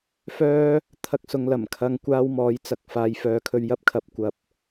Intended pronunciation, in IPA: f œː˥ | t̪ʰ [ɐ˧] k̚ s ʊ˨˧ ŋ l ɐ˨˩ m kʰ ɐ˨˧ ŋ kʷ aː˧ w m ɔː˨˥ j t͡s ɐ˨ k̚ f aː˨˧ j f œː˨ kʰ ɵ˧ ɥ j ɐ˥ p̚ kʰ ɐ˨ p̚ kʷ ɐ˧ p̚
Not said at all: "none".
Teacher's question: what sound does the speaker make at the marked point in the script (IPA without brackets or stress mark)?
ɐ˧